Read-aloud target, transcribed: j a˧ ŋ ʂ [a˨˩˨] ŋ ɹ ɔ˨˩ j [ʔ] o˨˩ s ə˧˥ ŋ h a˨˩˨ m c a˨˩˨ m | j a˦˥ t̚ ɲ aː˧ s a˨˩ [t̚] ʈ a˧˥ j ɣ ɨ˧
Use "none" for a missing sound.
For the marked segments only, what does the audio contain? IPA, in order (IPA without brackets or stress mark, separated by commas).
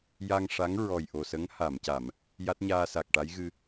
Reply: a˧˥, ʔ, k̚